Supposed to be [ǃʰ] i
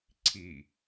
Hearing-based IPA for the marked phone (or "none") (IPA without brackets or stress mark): ǀʰ